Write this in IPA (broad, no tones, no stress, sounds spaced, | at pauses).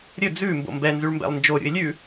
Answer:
ɾʲ ɵ d͡z ʉ m b o̰ m b ɛ n z ʉ ɭ m b ɛ̰ lˠ n d͡ʒ o ɾʲ ṵ ɪ̯ lʲ ʉ